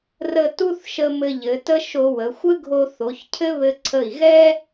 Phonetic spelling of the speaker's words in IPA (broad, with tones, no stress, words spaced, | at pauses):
rə˥ tu˥θʃə˧ mɘ˧ʎɘ˩˧tə˥ ʃo˧wə˩˧ xʷɘ˥ɡʱo˧ θo˩˧çcʰɘ˥ βɘ˧ ǀʰə˧˩i̯ɣɛ˥